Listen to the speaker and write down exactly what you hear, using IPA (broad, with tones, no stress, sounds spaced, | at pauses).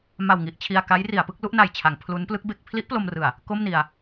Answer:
m a˨˩ w ŋ i˨˩ ʔ t͡ɕʰ i˧ a̯ k a˦˥ j r i˩˦ a̯ p ɯ˥˩ k̚ l u˥˩ ʔ n a˨˩ j t͡ɕʰ a˩˦ ŋ pʰ l u˦˥ n p l ɯ˦˥ k̚ b e˦˥ k̚ pʰ l i˦˥ ʔ p l o˧ m r ɯ˨˩ a̯ | k o˥˩ m n i˧ a̯